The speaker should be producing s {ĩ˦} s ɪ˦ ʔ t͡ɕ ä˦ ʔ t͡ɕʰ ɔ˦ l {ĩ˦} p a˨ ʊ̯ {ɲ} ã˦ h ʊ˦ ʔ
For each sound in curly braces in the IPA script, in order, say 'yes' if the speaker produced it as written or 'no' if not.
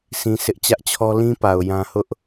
yes, yes, no

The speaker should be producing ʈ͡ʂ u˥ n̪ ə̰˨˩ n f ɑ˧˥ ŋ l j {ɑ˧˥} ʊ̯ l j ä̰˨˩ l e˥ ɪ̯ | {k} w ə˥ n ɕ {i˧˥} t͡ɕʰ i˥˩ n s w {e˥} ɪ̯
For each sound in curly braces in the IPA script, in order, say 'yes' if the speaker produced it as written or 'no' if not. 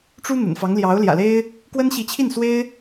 yes, yes, yes, yes

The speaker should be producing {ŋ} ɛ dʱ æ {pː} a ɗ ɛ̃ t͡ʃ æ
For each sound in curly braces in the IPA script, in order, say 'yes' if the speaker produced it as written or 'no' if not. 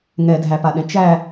yes, no

